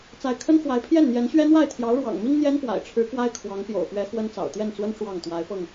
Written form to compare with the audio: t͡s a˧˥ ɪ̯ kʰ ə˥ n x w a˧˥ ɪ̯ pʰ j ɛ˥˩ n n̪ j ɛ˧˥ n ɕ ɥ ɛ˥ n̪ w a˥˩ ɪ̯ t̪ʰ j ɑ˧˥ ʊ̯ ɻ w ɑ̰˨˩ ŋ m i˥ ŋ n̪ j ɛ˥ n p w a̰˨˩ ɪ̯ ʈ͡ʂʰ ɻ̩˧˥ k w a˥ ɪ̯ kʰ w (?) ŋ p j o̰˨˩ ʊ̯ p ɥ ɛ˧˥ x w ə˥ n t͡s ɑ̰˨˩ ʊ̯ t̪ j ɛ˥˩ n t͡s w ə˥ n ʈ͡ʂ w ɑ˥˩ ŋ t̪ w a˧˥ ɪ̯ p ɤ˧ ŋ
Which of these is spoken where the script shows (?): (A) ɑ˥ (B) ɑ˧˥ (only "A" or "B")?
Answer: B